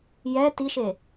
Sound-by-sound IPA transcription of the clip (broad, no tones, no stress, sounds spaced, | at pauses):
j ɛ t i ʃ e